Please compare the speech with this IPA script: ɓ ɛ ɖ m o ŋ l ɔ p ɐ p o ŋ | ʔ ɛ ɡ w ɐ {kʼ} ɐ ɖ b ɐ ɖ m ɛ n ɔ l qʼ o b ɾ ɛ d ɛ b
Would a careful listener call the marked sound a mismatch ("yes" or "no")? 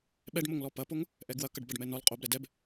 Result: yes